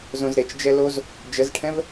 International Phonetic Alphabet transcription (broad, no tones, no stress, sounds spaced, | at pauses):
z õ z ɾ e t͡ʃ d͡ʒ ɛ l o z | d͡ʒ ə z ʈʰ ɛ̃ v